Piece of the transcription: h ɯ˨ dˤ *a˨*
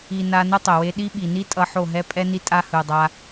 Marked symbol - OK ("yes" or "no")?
no